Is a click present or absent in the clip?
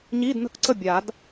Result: present